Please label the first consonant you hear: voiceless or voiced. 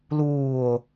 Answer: voiced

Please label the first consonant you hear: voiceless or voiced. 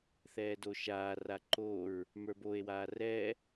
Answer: voiceless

